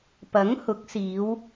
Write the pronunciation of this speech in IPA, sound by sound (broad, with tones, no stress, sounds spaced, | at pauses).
p ɐ˨˥ ŋ h ʊ˨˥ k̚ s iː˨˧ w